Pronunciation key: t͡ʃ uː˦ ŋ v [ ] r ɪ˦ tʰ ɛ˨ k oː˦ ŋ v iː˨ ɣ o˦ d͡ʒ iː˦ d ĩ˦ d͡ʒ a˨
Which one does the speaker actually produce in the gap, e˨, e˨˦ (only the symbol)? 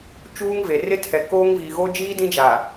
e˨